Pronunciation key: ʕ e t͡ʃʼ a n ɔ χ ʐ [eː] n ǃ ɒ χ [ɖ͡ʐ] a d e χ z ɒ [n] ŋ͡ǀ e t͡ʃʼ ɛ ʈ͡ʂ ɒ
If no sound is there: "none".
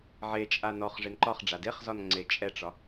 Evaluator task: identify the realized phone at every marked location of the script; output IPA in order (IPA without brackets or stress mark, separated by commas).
e, ɖ͡ʐ, n